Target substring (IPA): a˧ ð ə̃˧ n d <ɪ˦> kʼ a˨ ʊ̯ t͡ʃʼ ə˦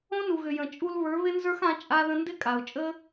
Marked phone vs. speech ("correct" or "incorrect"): correct